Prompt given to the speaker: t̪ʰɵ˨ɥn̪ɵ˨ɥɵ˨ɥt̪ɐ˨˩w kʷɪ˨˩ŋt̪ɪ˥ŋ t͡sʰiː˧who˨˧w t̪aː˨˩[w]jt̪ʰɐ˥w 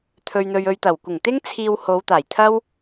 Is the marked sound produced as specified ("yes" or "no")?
no